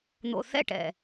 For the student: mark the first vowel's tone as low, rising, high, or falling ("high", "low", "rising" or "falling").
low